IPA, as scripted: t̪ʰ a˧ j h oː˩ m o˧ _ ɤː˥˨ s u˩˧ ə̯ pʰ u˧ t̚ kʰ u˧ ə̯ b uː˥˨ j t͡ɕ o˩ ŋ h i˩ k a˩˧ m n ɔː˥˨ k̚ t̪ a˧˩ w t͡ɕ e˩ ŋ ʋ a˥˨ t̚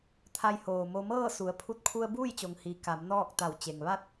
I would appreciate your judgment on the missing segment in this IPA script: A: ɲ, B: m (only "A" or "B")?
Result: B